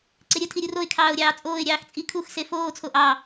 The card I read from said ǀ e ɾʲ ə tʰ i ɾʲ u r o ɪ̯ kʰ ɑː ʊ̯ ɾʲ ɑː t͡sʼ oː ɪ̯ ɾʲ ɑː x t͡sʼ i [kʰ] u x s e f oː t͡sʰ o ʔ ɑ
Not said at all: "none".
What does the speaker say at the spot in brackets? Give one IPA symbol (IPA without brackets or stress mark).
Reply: kʰ